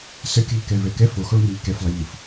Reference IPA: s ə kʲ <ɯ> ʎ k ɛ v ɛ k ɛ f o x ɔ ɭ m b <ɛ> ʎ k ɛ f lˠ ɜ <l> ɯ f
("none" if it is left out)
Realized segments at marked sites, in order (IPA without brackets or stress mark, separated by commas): ɯ, ɛ, ʎ